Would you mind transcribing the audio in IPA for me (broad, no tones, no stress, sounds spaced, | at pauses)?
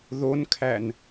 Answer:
ð o n kʰ æ n